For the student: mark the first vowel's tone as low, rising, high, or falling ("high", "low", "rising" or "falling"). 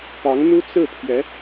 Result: rising